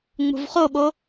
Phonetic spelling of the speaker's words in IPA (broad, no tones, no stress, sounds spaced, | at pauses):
ŋ͡m ṳ v χ o ɓ o